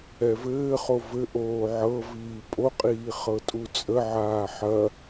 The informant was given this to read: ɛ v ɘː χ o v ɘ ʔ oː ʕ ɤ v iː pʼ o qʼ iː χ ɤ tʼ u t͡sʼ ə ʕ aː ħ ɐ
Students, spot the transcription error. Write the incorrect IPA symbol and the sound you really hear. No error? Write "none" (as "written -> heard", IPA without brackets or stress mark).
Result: none